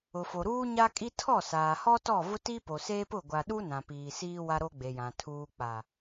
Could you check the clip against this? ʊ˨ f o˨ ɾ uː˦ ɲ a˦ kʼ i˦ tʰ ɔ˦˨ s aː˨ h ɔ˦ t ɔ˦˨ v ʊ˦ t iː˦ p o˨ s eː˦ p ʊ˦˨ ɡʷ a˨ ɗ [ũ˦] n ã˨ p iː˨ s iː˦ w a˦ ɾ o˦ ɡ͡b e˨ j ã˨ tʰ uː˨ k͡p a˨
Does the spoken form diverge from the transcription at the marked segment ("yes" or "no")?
yes